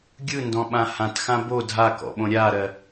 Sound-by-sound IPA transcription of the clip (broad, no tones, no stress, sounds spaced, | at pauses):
ɡʲ ɯ n d ɔ̃ ɓ ã h ã t x ã b o dʱ a k ɔ̰ ɓ õ ɾʲ a ɾ ɜ